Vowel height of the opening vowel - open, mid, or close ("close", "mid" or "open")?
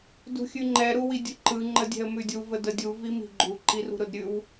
close